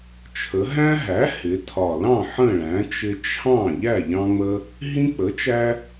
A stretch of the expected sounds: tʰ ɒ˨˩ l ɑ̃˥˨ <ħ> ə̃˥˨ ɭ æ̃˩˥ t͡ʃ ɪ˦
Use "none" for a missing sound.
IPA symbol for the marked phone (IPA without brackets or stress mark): ħ